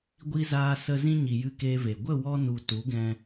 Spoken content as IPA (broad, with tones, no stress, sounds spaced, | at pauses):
ɡʷ i˧ z aː˧ s ə˧ z ĩ˧ ɲ i˨ j ɨ˧ k eː˧ v e˨ ɡʷ ə˦˨ w ɔ˧ n u˨ t u˨˦ ɡ ɛ̃˧